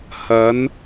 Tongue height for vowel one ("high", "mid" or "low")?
low